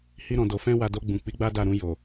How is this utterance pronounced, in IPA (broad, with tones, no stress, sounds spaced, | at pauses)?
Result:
h i˧ ɾ ɔ̃˨ d o˨ f ɛ̃˧ w a˨ d o˧ ɡ͡b ũ˨ k͡p i˨˦ ɡ͡b a˦ d a˦˨ ɾ ũ˧ j o˨